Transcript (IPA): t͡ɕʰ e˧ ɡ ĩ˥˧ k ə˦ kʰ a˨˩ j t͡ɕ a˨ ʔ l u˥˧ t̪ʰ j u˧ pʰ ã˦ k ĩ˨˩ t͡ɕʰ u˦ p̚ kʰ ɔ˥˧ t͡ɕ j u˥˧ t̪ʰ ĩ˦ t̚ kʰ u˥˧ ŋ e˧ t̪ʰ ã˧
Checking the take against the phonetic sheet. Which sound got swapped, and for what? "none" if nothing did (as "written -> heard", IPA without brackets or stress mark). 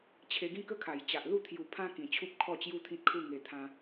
none